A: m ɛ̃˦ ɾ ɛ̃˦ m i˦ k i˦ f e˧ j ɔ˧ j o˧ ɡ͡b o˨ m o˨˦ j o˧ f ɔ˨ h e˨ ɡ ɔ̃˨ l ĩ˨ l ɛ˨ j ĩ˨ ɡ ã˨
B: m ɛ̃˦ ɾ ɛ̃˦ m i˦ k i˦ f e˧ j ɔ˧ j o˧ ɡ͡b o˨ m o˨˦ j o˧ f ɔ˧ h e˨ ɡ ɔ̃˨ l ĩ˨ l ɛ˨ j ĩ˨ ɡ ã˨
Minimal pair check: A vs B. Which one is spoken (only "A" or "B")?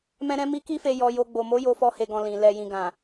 B